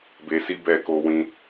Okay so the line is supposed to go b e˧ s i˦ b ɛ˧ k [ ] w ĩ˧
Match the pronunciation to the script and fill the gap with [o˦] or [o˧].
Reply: o˧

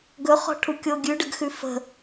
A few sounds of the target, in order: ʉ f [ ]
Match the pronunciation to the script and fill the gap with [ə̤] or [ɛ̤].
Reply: ə̤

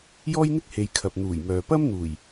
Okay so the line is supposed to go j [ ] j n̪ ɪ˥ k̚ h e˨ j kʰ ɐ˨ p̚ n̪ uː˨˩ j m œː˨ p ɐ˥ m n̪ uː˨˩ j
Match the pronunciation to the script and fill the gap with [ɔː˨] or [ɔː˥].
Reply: ɔː˥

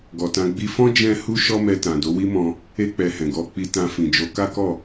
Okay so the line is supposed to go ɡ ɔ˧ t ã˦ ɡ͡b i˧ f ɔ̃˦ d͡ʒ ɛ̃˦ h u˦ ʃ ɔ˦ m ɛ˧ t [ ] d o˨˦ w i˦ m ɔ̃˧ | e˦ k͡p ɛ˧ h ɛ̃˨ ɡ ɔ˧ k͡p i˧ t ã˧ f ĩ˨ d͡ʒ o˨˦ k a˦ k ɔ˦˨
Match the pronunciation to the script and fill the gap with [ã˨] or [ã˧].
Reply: ã˨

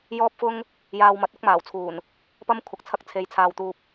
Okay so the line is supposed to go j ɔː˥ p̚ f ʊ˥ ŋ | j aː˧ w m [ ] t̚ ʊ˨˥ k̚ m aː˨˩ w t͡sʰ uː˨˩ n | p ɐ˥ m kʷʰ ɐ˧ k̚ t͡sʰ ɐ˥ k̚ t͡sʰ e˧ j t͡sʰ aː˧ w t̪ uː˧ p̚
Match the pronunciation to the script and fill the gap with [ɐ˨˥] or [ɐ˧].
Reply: ɐ˨˥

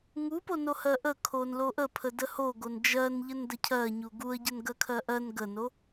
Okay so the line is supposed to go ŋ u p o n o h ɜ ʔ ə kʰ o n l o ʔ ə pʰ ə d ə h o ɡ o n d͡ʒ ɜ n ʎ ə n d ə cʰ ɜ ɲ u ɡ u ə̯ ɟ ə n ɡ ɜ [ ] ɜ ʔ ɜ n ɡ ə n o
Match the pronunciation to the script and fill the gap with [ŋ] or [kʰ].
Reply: kʰ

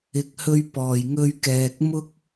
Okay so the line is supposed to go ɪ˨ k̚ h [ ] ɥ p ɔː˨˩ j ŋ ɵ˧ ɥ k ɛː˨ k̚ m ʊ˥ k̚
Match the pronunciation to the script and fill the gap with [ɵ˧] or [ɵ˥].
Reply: ɵ˧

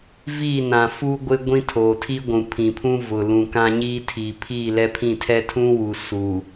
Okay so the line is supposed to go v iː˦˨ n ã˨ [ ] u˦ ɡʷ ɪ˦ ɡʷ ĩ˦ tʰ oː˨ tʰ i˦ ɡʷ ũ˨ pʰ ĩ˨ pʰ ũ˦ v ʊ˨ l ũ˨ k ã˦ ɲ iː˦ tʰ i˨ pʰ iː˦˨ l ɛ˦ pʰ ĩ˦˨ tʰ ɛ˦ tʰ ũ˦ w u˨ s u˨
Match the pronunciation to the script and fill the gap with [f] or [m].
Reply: f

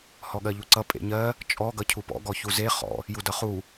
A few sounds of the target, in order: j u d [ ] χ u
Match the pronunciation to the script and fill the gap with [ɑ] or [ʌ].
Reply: ʌ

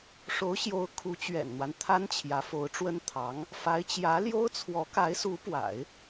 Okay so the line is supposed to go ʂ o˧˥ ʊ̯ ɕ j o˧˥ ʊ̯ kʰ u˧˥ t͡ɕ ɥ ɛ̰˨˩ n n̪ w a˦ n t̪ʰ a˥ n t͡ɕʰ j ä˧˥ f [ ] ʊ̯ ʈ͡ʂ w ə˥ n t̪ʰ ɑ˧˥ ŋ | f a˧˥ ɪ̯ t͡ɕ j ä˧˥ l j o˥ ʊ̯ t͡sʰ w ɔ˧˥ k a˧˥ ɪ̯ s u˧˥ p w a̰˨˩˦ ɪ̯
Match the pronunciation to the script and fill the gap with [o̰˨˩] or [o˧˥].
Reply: o˧˥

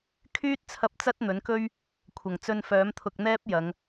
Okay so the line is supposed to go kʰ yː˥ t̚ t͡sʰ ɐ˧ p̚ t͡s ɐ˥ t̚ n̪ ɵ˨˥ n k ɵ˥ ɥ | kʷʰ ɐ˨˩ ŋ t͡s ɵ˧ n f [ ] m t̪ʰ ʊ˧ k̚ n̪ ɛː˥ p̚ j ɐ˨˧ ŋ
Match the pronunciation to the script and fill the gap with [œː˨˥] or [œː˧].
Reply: œː˨˥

